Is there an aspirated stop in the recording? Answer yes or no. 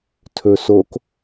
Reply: yes